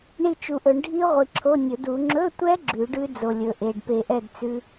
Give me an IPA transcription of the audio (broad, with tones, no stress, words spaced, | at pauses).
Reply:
ɳi˦˨t͡ʃu˨ʔɵ˨˩˦ɳ ɖʱi˦˥ ʁʷi˨ ǁʰo˧˥˧nʲɵ˨˩˦du˨˩˦ ŋ͡ǁɵ˧˥˧tʷɛ˦˥ ɡ͡ǁʉ˨˩˦ɖʉ˦˥d͡zo˨ lʲɵ˨ʔe˨ɖ pe˨˩˦ʔɛ˦˨d t͡sʉ˦˥